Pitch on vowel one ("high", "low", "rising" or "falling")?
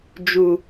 low